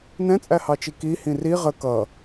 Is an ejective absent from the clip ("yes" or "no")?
no